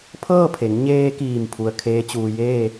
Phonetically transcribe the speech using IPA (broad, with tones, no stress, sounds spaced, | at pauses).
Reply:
pʰ ɤː˥˨ pʰ e˩˧ ŋ ɲ eː˧ k iː˧˩ m pʰ u˧ ə̯ kʰ eː˧˥ t͡ɕ uː˧ j eː˥˨